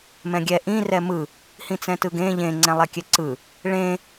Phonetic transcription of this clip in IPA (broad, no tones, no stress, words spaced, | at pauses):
mɛ̃ɡʲɛ ʔĩ rɛmɯ | hĩt͡sɛ̃tɯɡẽ ʎẽ ŋ͡ǀɛ̃lˠɛkʲɛǀɯ | ɭẽ